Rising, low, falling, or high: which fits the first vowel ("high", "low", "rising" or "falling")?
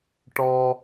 high